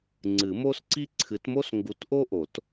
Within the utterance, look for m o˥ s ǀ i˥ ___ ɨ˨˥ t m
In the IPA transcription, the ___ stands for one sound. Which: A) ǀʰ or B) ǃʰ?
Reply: A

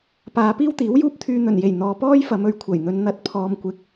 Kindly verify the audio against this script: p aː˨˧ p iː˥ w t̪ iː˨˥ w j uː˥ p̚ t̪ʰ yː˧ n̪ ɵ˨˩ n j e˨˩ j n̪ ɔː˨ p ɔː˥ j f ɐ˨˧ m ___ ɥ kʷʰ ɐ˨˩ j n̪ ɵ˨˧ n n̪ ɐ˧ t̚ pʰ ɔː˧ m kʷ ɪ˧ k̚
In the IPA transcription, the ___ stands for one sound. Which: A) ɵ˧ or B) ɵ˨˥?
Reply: A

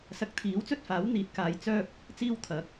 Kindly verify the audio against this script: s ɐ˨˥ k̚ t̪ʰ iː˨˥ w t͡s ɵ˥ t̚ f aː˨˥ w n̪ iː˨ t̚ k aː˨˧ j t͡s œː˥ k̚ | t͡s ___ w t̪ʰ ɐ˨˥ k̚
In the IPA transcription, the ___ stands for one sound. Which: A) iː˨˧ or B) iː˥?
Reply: B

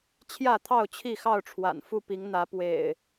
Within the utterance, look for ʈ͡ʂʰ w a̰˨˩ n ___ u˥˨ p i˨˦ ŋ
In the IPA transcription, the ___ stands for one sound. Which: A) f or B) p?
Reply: A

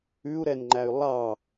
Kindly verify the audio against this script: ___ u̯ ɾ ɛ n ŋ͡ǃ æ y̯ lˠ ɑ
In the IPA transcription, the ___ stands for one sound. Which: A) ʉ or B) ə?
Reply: A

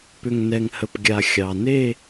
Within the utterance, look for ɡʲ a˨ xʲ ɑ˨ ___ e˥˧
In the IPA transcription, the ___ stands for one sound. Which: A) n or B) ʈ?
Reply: A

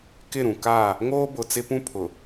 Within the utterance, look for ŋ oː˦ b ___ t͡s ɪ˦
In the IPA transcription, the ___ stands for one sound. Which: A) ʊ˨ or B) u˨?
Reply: A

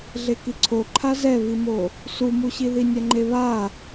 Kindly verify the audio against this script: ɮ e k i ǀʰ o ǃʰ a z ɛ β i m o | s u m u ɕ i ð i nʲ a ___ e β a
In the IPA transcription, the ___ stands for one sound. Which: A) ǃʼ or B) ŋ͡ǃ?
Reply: B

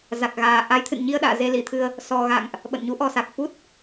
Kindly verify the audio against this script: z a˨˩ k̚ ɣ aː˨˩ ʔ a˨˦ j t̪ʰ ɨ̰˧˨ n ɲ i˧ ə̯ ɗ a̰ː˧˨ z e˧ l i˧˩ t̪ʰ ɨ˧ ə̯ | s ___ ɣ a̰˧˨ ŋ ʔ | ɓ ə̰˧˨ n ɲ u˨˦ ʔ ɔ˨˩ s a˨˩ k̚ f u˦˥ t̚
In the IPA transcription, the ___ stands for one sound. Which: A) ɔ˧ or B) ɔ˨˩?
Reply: B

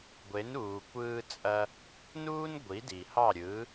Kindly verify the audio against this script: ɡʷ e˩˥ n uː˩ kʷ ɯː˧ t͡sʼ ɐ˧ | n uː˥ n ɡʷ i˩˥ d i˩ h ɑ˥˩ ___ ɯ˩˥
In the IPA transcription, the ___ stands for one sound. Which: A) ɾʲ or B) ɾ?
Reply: A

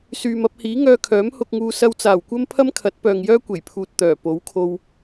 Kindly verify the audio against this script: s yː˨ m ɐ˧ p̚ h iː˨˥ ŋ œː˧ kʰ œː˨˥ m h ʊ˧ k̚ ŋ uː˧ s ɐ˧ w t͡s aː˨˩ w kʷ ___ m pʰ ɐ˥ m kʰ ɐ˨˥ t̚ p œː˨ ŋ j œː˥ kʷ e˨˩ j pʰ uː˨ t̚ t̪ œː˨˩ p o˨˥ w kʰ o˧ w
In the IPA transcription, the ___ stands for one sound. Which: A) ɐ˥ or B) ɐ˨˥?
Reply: A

